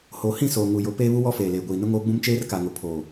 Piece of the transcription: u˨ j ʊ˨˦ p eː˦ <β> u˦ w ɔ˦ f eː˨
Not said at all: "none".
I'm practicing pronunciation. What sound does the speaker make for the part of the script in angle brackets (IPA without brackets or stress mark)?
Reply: β